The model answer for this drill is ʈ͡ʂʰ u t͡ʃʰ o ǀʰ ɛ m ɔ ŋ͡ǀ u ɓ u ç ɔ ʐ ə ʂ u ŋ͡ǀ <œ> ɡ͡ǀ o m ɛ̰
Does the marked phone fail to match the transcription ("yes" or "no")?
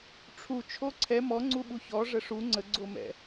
yes